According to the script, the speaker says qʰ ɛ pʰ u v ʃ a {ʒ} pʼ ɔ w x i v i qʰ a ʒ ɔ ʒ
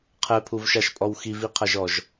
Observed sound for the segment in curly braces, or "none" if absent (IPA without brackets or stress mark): ʃ